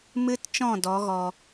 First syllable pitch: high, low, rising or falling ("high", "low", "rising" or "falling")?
high